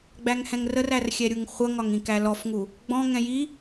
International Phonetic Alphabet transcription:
ɡ͡bæŋhɛ̃ŋrərær xʲɛɾʲuŋχʷʌŋɒŋ ĩkælɔfŋu | ɡ͡bɔ̃ŋɛ̃ ji

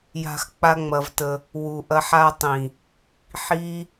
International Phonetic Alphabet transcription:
ja̤˧x k͡pa˦ŋ͡mɐ˧vtə˧ | wu˨ʔɐ˧ħa˧ tˤĩ˨ | ħi˦

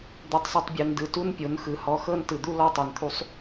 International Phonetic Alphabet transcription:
d̪u˧tˤsˤɯ˧tˤbʲɤ˧ndɯ˧ tu˦npʲo˨˦nxɯ˨ hɔ˧ xɤ˦ntɯ˨d̪u˦ lɔ˦tˤɛ˨nt̪ʰu˦sˤ

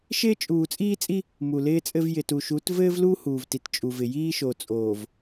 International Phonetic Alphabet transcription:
ʃɪː˦t͡ʃʼuː˨t͡sʼiː˦t͡sʼi˦ | mu˨lɪː˦t͡sʼɘ˦v jɪ˨tu˨ʃu˨˦t vɘː˦vlu˦ huː˨vti˨tt͡ʃʼu˨vɪ˨ jiː˦ʃo˨t͡sʼoː˨v

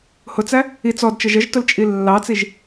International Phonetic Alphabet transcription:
hʊt͡sæ | i t͡sɔdt͡ʃə ʒəʒtʊlt͡ʃʼi lːɑt͡siʒ

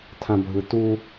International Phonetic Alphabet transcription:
tʰãbʱɯtu

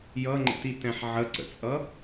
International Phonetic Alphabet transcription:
jʌŋ͡ǃə̰titɛ̃ħ ʕəǀə̰t͡sʼʌ

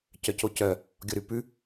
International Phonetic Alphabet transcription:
cœcocœ | ɡʲɔɾʉpʉ

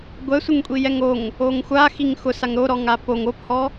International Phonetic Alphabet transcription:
ɡʷɛsʷɪŋkʷʼi jɛŋoŋ | oŋxʷaxiŋ xʊsaŋ ɾoɾɔŋa poŋ ophɔ

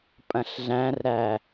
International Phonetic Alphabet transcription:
pʼɐ̃ɬɮæ̃rɾæ

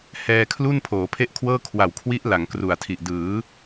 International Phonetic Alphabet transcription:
hɛː˧kʰlu˥˩n pʰoː˩˦pʰe˥˩ʔkʰwɤː˥˩ kʰwa˨˩wkʰwi˦˥ʔ la˩˦ŋkru˨˩a̯tʰi˨˩ʔ dɯː˩˦

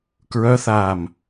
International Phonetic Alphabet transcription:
kɹœθaːm

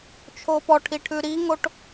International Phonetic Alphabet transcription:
t͡ʃʰopɔʈʰiʈʰʉ ɾiŋoʈ

